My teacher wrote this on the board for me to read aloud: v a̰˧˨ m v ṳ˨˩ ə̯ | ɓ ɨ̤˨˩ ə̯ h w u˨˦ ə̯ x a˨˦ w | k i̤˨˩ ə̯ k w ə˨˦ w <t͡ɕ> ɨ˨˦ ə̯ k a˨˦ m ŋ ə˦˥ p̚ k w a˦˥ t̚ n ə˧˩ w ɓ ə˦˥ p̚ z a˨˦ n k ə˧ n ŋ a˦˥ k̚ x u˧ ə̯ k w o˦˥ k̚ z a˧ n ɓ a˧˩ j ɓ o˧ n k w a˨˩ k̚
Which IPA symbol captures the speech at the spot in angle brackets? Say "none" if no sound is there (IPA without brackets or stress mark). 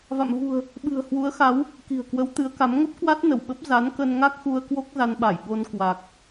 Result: t̪